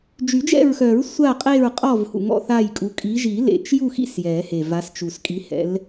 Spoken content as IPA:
d͡ʒy˨˩˦d͡ʒɛ̰˦˨ɹxœ˨˩˦ɹ sʷa˦˨qʼe˦˨ɹqʼɔ˦˨v hṵ˨˩ŋɔ̰˦˨θa˦˨jkʼu˨˦ kʼi˨˦ʒi˨˩˦ lḛ˨˩t͡ʃju˦˨xḭ˦˨s jɛ˨˩˦he˨˩va˨˦st͡ʃu˨˩s kʼi˨˦hɛ̰˨˦l

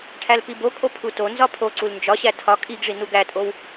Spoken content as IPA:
ʈʰælpibokʼo pʰutonzɒ pʰo ǀulnd͡ʒɒɕæ tʰɒ kʼiɡʐi nuɡætʼow

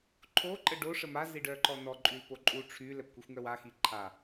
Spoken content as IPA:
ǃʰo ǃʼəɖo ʂəma ziɖœǃɔnɔ ǃʼylpoǃʼu ʈ͡ʂʰy lɛpkʷixʷŋœwa xiǃʰa

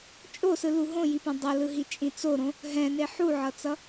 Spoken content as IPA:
t͡ʃʼosɯlu ɦõjipɛ̃ dˤʌlɯɦit͡ʃʼĩ t͡soɾõ | ɦɛ̃ne ħuʕʌt͡sʌ

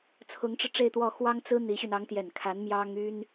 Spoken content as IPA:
t͡sʰʊ˧˥ŋʈ͡ʂɻ̩˧ʈ͡ʂe˥˧ɪ̯t̪wɔ˥˩ xwɑ˥ŋt͡sɹ̩˥ n̪i˧˥ɕy˧n ɑ˧˥ŋt̪jɛ˨˩nkʰa˧˥n mjɑ˥ŋy˥n

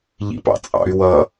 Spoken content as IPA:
ʎḭpɑ̰t͡sʼɑ̰y̯ wʌ

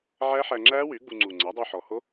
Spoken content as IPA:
ʕæ˦˥ħæ˧ŋ͡ǁæ˦˥wy˩˥ ɡ͡bu˧ŋ͡ǀu˨˩ ŋ͡ǀæ˩˥dˤo˧ħɔ˨˩ho˦˥

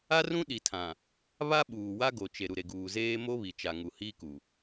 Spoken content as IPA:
a˦rũ˦ɗi˨tʰã˨ | βa˦ɓuː˨ wa˦ɡo˨ t͡ʃe˨ ɾu˨ɾe˨ɡuː˨ zeː˦ mo˦βi˨t͡ʃa˨ ŋu˨hiː˦ku˨

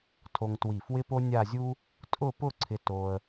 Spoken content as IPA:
tʰo˧ŋtwi˧˩fwɪ˥ po˥nʲa˥˧zʲu˥ | tʼʊ˥˧pʊ˥˧ǀʰɪ˧ to˧ə̯

